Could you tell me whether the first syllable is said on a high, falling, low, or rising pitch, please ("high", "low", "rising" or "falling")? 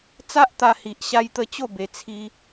high